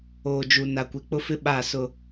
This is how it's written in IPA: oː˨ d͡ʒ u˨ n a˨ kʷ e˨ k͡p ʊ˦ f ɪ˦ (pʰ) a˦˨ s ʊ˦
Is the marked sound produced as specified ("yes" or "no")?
no